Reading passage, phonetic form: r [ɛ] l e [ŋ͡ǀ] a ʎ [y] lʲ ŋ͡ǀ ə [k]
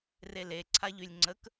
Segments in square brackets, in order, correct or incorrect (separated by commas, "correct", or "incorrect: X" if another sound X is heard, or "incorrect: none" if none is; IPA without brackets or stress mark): incorrect: e, incorrect: ǀʰ, correct, correct